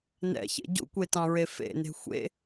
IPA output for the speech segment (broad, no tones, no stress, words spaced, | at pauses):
nɛ̰çḛ ɟṵkʷetɑ̃ɹe fḛne̤ xʷḛ